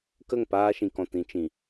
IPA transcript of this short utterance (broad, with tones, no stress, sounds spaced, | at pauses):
k ə˦˨ ŋ p aː˧ ʃ ĩ˨ k ɔ̃˨ t ĩ˧ t͡ʃ ĩ˨